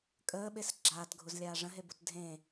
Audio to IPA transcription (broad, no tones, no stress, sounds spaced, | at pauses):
kʼ əː ɓ e s ɡ͡ǁ aː t ɡʱ u z lʲ aː ʐ ə̃ ɦ e b u t dʱ ẽ